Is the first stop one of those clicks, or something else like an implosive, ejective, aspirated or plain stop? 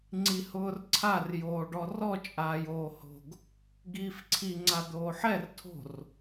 click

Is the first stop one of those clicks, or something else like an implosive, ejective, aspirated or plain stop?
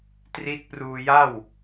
plain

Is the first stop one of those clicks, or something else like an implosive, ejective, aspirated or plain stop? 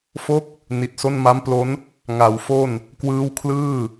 plain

